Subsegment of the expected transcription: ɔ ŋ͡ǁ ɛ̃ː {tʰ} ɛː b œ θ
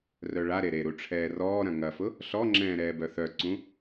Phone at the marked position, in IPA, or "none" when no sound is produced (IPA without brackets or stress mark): ɾ